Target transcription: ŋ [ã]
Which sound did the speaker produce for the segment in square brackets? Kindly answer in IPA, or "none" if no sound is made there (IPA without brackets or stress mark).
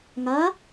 a